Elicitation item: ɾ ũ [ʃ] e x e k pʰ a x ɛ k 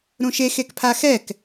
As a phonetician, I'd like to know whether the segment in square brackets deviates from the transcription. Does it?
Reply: no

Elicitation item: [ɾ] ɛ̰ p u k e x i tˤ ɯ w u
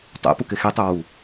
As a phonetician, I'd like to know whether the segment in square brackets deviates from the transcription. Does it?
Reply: yes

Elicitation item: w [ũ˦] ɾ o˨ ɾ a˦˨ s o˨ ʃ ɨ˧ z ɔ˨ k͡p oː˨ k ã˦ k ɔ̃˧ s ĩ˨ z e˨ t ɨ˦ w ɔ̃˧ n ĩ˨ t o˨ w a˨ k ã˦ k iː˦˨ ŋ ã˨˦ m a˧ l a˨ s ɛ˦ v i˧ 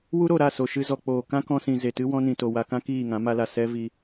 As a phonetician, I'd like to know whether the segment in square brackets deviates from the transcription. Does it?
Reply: yes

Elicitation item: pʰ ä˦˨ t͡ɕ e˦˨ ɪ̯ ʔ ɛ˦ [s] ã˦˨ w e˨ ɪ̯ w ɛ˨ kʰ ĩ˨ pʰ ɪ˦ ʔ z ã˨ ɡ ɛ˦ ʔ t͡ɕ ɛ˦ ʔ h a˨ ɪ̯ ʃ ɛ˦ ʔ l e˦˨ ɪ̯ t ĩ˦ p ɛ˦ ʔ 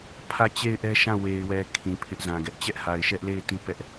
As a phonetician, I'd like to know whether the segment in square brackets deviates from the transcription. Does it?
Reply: yes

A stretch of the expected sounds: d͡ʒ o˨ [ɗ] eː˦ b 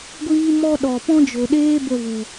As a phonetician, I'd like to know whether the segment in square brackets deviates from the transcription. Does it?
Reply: no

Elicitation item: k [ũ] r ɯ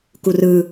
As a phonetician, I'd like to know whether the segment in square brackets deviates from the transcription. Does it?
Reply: yes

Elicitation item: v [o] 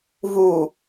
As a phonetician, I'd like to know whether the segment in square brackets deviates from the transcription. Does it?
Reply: yes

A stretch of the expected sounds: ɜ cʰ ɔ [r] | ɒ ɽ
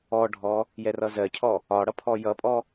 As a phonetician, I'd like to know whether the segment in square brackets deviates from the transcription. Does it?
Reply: yes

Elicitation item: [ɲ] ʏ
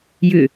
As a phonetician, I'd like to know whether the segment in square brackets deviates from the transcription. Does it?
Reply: yes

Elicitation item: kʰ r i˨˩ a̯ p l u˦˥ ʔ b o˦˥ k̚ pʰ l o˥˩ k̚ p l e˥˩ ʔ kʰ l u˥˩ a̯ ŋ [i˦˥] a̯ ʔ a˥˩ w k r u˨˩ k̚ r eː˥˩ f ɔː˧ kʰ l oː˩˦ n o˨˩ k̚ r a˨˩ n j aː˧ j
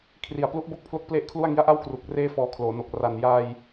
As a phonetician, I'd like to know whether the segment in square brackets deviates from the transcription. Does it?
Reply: no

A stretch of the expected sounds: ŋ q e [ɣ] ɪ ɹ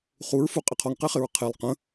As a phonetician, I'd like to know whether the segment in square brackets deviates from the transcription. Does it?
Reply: yes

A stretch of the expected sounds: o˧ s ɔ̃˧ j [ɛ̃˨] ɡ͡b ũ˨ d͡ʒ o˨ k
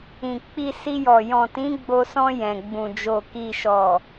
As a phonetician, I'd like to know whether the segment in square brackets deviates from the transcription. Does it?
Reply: no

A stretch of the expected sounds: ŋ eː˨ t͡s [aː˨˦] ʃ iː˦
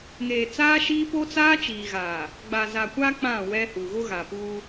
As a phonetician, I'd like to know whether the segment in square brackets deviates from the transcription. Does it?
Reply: yes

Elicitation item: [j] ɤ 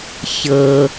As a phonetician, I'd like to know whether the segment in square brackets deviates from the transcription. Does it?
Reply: yes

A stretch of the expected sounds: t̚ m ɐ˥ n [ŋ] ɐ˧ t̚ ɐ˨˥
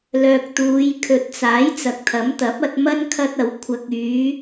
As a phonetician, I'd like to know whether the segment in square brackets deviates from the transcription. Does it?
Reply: yes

